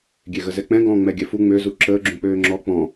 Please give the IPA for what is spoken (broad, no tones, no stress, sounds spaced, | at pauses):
ɡʲ e ɣ ə z ɛ k͡p ɛ̃ ɡ ɔ̃ː ŋ͡m ɛ ɡʲ ɛ f u ŋ͡m ø z u ǁ əː ɡ͡ǁ ũ k͡p øː ŋ͡ǁ ɔ k͡p ɔ̃